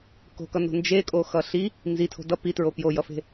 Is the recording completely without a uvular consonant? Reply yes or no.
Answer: yes